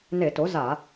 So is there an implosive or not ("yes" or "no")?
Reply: no